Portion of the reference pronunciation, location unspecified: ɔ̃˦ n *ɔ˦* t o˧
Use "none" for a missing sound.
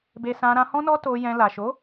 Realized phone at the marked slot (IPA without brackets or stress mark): ɔ˦